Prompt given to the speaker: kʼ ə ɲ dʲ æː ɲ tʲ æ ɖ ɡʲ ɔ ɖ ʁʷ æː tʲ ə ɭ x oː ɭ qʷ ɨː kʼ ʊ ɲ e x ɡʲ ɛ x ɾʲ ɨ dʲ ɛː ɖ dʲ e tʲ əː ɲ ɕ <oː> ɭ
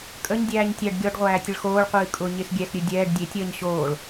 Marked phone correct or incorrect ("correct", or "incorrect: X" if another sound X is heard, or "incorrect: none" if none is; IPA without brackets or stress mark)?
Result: correct